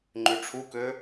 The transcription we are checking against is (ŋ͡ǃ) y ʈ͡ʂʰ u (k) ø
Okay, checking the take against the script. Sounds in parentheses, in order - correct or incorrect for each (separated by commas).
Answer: correct, correct